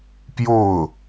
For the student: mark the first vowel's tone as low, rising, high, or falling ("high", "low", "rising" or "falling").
falling